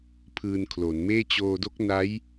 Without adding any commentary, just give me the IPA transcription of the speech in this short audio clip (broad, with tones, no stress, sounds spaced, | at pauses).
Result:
pʰ ɯː˧ n kʰ l o˩˦ n m eː˥˩ t͡ɕ oː˧ d o˦˥ k̚ n a˦˥ j